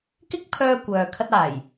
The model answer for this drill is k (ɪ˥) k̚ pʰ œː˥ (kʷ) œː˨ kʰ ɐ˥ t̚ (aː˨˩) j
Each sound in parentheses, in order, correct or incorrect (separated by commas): correct, correct, correct